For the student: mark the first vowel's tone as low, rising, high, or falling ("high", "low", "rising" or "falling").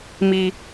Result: low